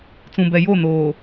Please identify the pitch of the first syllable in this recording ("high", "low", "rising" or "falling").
low